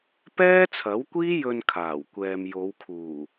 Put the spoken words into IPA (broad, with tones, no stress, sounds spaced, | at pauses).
p ɛː˥ t͡sʰ ɐ˨˥ w kʷ iː˥ j ɵ˧ n kʰ aː˨˩ w kʷ ɛː˨ m j o˨˧ w kʰ uː˨˩